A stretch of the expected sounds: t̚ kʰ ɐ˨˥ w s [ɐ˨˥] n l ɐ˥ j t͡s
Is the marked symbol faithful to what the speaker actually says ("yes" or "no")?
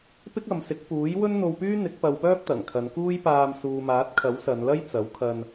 no